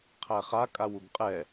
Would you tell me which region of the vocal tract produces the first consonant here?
uvula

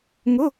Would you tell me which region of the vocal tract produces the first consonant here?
velum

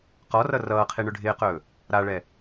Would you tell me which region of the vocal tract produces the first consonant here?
uvula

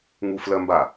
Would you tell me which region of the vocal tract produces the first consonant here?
velum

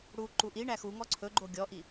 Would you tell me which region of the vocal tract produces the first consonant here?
retroflex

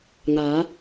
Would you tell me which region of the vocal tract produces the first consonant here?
velum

